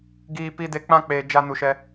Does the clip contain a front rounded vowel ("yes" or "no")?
no